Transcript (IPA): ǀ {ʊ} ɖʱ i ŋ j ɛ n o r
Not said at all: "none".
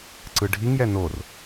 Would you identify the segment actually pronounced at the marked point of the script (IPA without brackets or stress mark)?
ɯ